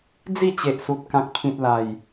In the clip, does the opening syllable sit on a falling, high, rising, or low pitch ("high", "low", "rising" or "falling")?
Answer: falling